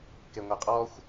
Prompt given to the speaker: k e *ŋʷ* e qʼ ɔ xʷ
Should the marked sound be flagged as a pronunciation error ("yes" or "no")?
no